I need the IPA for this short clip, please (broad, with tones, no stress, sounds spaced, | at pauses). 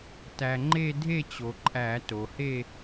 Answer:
t æ˩ ŋ͡ǃ e˥˧ dʱ e˥˧ t͡ɕ o˩ ǃʼ æ˧˩˧ t o˩ h e˥˧